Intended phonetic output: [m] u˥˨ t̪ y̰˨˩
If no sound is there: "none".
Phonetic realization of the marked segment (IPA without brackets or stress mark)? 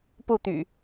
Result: p